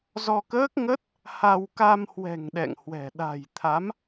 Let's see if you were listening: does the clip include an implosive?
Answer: yes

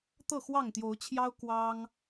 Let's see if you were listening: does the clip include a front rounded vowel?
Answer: no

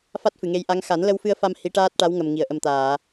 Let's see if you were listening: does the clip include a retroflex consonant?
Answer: yes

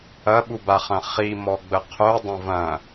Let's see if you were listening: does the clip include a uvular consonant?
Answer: yes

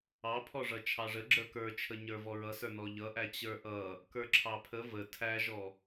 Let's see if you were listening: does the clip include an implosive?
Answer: no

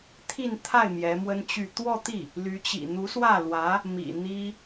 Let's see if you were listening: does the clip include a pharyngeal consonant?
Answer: no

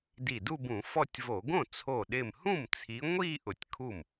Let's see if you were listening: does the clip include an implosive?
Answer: yes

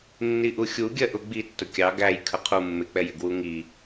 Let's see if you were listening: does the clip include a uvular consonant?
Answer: yes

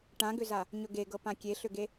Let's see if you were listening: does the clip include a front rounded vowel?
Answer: yes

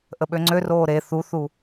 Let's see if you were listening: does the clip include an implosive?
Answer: yes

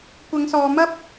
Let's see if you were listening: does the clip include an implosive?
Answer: no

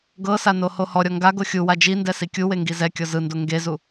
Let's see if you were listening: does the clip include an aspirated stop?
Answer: no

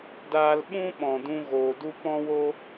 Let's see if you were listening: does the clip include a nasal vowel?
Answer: yes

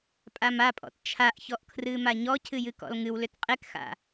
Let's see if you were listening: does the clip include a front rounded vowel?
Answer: yes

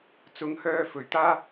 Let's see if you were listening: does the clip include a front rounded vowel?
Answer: yes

